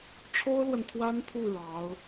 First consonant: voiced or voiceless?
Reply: voiceless